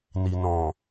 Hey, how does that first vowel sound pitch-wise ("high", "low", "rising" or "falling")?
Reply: low